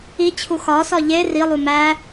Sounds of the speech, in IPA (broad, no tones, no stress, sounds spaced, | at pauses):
i t͡ɕʰ u x ɒ s ɒ ʎ e r i lˠ u m æ